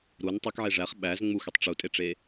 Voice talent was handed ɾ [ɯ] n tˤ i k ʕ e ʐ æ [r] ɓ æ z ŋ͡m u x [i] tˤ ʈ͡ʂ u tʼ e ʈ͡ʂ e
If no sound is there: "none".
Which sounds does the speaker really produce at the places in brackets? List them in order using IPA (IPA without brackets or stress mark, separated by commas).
u, χ, y